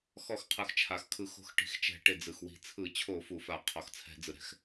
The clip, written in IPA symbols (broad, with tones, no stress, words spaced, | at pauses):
xɔ˧˩˧xqʰɯ˩x t͡ʃʰa˩xkʰɯ˧˩˧xo̤˧˩˧x ʈi̤˩xt͡ʃɛ̤˧˩˧ ʈe˩d͡zɯ˩xwi̤˧˩˧ t͡sʰɯ˧˩˧t͡ɕʰo˧˩˧fu˩ fa˧˩˧ qʰɔ˩xt͡sʰɛ̤˧˩˧d͡zɯ˩ ɾɛ̤˩x